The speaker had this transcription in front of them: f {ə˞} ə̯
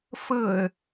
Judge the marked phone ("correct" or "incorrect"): incorrect